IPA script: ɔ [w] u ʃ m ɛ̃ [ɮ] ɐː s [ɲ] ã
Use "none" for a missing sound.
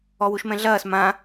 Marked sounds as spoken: w, ɮ, m

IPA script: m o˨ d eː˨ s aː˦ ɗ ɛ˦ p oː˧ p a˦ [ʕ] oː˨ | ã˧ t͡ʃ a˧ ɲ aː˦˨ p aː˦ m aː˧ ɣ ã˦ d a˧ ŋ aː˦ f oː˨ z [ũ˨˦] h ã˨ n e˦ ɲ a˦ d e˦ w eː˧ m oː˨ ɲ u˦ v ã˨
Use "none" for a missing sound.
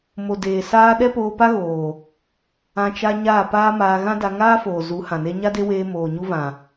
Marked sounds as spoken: ɣ, u˨˦

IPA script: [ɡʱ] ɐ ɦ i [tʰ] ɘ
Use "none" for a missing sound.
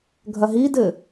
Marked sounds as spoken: ɡʱ, d

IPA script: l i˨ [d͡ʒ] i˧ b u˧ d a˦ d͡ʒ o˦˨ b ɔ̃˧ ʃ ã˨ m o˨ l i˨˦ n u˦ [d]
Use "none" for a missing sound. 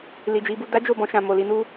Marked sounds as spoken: d͡ʒ, none

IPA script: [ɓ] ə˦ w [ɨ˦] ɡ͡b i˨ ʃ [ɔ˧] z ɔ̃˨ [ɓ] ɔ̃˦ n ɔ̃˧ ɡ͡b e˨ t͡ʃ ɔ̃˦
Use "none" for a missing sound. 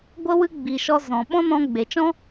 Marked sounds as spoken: ɡʷ, ɨ˦, ɔ˧, ɓ

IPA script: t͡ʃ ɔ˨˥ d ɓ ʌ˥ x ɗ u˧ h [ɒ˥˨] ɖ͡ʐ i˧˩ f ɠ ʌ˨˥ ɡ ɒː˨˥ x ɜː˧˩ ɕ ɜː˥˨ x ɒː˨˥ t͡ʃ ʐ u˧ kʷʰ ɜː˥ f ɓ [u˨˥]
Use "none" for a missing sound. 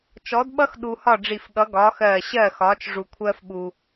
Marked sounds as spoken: ɒ˥˨, u˧

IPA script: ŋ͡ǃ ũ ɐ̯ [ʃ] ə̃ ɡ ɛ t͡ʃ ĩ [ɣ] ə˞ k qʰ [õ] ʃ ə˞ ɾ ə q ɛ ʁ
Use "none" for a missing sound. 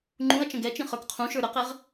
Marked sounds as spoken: t͡ʃ, χ, ũ

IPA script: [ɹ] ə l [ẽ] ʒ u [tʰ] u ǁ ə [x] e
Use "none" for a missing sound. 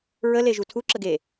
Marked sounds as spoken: ɹ, e, tʰ, ɡ

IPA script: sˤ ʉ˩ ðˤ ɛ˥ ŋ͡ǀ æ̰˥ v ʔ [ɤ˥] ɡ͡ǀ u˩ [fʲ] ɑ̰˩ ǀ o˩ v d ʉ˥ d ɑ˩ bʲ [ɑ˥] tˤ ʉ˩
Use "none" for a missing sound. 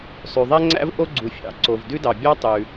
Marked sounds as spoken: o˥, fʲ, ɑ˥

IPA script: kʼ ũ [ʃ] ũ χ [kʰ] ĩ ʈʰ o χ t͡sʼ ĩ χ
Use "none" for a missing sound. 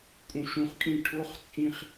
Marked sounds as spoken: ʃ, kʼ

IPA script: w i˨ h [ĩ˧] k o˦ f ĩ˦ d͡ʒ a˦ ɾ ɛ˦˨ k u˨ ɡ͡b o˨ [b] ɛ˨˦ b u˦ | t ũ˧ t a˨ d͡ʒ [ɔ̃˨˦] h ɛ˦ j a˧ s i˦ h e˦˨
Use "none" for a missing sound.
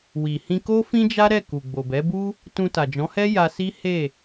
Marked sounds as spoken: ĩ˧, b, ɔ̃˨˦

